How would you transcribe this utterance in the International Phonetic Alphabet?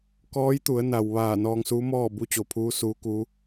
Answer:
k ɔː˧˥ j t̪ u˩˧ ə̯ n a˩ w ʋ aː˧˩ n ɔː˧ ŋ s uː˧˥ m ɔː˥˨ b u˧˥ t͡ɕ o˩ pʰ uː˧˥ s uː˧˥ k u˧˥

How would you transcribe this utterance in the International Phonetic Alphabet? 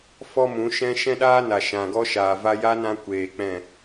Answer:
f ɔ˦ m ũ˨˦ ʃ ɛ̃˦ ʃ ɛ̃˦ ɗ aː˦ n a˨ ʃ ã˨ ɡ ɔ˧ ʃ aː˨ v a˧ j a˦ n ã˧ kʷ eː˨ k͡p ɛ̃˦˨

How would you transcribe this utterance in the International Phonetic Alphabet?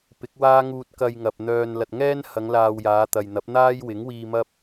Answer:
p ɪ˨˥ k̚ w aː˥ ŋ uː˧ t̚ k ɐ˧ j ŋ ɐ˨ p̚ n̪ œː˨ n l ɐ˨ t̚ ŋ ɛː˥ n h ɐ˨˧ ŋ l aː˧ w j aː˨˧ t̪ ɐ˨ j n̪ ɐ˨˥ p̚ n̪ aː˥ j w ɪ˨˥ ŋ w iː˧ m ɐ˥ p̚

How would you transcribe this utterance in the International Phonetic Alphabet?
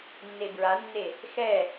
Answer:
nː e b ɹ a nː e | x ɛ

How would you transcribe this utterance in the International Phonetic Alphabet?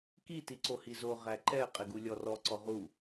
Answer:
k i t i ǀ o h i z o ʁ æ ǃ ɛ qʼ ɪ ɡ u lʲ ɔ r ɔ ǀ ɔ ʁ u

